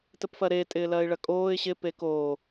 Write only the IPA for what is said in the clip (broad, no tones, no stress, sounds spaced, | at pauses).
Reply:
t ə p f ɐ ɾ e tʼ ɪː l ɐː ɪ̯ ɭ ɐ kʼ oː ɪ̯ ɕ ɪ p e k oː